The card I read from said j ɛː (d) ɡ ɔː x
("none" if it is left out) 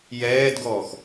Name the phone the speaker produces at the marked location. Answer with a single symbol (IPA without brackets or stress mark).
d